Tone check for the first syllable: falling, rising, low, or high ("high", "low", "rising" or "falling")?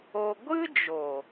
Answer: high